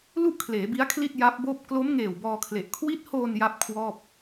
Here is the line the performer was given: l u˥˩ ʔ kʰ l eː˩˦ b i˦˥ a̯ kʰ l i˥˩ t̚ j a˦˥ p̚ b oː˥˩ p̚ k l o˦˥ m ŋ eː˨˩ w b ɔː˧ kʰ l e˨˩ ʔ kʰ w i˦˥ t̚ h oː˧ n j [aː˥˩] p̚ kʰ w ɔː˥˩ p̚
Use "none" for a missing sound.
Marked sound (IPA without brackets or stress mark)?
a˥˩